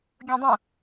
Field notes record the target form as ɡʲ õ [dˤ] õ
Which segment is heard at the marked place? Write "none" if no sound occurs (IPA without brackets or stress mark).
dˤ